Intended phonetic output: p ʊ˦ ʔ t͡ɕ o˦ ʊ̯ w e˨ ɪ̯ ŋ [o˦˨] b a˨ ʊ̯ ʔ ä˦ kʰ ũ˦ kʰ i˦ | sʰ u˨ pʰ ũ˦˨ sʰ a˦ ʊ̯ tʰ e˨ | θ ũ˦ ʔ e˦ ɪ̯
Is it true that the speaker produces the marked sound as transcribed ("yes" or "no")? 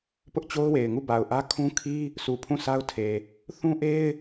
no